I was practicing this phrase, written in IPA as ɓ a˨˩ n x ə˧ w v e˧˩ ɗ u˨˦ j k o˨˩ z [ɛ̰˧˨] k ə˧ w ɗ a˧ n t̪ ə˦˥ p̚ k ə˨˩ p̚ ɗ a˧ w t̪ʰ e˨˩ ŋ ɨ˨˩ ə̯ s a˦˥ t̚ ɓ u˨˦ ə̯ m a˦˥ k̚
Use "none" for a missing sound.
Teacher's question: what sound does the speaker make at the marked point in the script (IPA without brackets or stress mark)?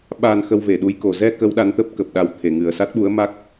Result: ɛ˧